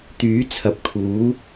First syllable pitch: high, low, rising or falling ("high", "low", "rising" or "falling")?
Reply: rising